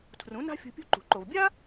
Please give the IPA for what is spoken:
tʰ r ũ˩˥ n a̤˥ fʲ ṳ˧ pʲ ṳ˥ ǃ ṳ˩ ǃ o˩ v bʲ a˥

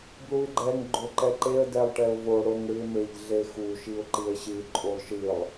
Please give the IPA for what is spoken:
b l u ɪ̯ ɡ͡ǃ ɛ ŋ ɡ͡ǃ o ǃ ɛ ǃ e ə̯ d ɛ lˠ ʈ ɛ ʊ̯ v o ɽ o ŋ ɽ ɨ ɪ̯ m e ʎ ɮ e x u ʃ i ʊ̯ ǃ i ə̯ ɕ ɨ ǃʼ u lˠ ʃ ɨ lˠ

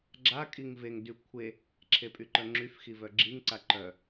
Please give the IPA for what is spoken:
ɡ͡ǁ a kʼ i ŋ v e ŋ d y kʷʰ e | ǁʰ e pʼ y ǃ œ ŋ͡ǁ y f x i v œ ɡ͡ǁ i ŋ ǀ a ǃ œ

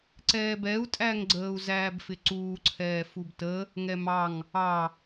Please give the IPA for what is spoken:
ǀ ɛː b ɛ u̯ tʼ æ ŋ ɡ͡ǀ əː u̯ z æː b f ɪ ǀ uː ǀʰ ɛː f u b t ə | ŋ ɛ m ɑ ŋ | ɑ

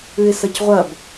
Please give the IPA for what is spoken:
ʉ ɪ̯ s ɐ c ʁʷ ɐ b

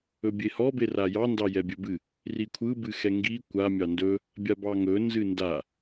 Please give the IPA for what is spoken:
ɵ bʲ e h ɔ b e r a j ɑ n d ɑ j ɛ bʲ ɵ b ɨ | r i kʷʰ ɯ b ɨ x ɛ ŋ ɡ i kʷ a mʲ ɑ n d ɵ | bʲ a b ɑ ŋ ɵ n z ɨ n d a

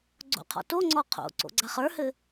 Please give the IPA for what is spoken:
ɡ͡ǀ o̰ qʰ ɔ̰ t o ŋ͡ǀ ɔ qʰ o̰ ǀ o̰ ɡ͡ǀ a χ ə˞ h ɘ

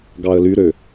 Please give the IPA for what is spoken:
ɡ ɑ ə̯ l y ɾ ø

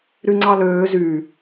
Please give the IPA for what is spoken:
ɾ y ŋ͡ǀ ɑ l øː z y

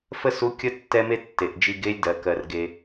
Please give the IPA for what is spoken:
f ə˥ s u˧˥ kʲ ə˥ tː ɛ˥ m e˥ tː e˩ ʔ d͡ʒ i˧ ɡ e˧˥ lʲ d ɜ˩ k ɜ˩ r ɡ e˩

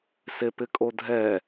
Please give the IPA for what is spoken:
s e p ɪ kʼ o dʱ ɛ

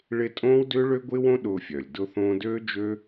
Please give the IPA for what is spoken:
ɭ ɪ˦ tʼ õː˦ w d ʏː˦ ɭ ø˦ ɡʷ ɪː˦ w õ˦ ɗ ʊː˧ fʲ œ˨ lʲ d ʊ˧ θ õː˧ d øː˦ d͡ʒ ø˦

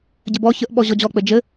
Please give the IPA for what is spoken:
ɟ ɘ b ɔ ç ə ʔ ɓ ɔ ʑ ɔ d͡ʑ ɔ k͡p ɘ d͡ʒ ɘ

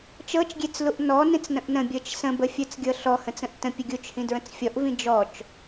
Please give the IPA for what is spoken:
t͡ʃ ɤ t͡ʃ ɡʲ e t͡s l u ʔ n ɔ n ĩ t͡s n ə̃ ʔ n ə̃ bʲ ɤ t͡ʃ s ə̃ b ə fʲ ə˞ t͡s ɡʲ ɤ ɬ ɔ h ə̃ t͡s ə̃ ʔ t ə̃ pʲ ə ɡʲ u t͡ʃ h ĩ d ɹ ə̃ t͡s fʲ ɔ ʔ v ĩ d͡ʒ ɔ t͡ʃ

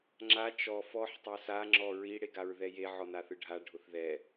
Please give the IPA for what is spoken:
ŋ͡ǁ a t͡ʃ ɔ f ɔ ħ tˤ a s a ŋ͡ǁ ɔ ɹ i ɽ e ɡ a ɹ ð ɛ j e ʕ ɔ n a θ ɯ ɖʱ a ɖʱ ʊ θ ð ɛ

